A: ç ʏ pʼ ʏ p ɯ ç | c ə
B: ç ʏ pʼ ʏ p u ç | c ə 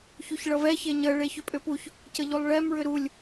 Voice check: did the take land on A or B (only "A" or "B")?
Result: B